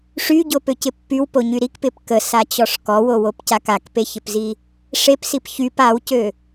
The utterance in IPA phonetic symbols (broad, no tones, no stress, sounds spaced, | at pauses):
ʂ y ɟ o p ø c ɪ pː y w p o ɲ y ɾ i k p ɪ p k ə s a t͡ɕ ɔ ʂ k ɔ w o w o p c a k a k p e ç ɪ p z i | ʂ e p s i p ç y p a w c ø